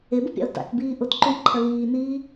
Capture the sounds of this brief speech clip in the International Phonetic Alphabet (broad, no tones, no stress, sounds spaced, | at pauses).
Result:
e b u pʲ a̰ ʊ̯ t a̰ k b iː ʔ ʊ t ǃ u j ǃʰ ɐ l iː n iː